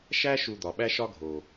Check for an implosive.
present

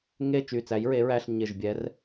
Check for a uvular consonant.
absent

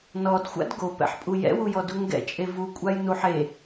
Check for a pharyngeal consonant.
present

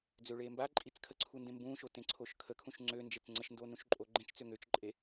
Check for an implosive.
absent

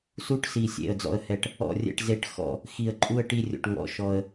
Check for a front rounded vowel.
absent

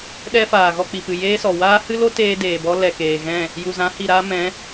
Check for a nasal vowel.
present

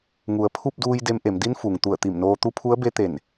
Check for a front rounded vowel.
absent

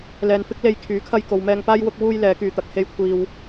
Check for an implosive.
absent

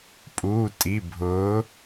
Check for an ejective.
present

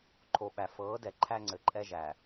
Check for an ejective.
present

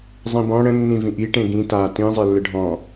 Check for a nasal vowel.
present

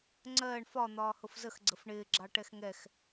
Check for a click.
present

